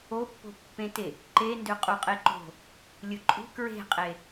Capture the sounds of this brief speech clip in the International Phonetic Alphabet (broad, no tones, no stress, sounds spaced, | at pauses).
o pː o̤ pː ẽ t e | ǃ e n d ø qʼ u qʼ e ǃ o̤ | lʲ ɯ ǃʼ ṳ k ɹ e̤ qʼ e